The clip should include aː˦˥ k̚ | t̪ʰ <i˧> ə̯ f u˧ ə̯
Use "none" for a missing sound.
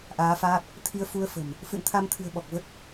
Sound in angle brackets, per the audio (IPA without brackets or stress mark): i˧